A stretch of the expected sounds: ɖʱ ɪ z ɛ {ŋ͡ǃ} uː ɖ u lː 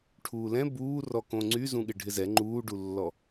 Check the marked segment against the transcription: correct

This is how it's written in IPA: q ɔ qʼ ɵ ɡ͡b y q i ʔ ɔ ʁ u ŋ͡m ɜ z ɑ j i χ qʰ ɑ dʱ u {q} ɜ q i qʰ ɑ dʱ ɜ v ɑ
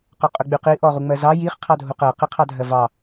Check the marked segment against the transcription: correct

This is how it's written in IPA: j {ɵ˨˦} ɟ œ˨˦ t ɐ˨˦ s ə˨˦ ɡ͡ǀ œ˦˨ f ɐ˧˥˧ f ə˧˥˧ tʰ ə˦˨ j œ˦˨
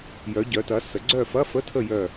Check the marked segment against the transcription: incorrect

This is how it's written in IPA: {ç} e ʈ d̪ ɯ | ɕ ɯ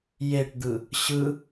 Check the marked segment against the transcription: incorrect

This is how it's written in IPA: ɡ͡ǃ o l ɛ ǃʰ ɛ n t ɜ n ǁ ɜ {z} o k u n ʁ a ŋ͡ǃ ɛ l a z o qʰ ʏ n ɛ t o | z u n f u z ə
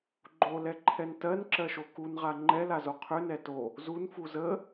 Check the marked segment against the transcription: incorrect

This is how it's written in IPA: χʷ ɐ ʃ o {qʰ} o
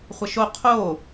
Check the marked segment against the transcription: correct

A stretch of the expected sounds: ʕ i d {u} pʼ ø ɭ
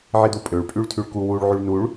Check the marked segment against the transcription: correct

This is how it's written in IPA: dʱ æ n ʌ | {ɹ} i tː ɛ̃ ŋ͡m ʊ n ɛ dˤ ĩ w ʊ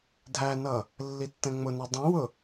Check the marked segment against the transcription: incorrect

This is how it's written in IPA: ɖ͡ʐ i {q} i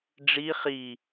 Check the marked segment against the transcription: incorrect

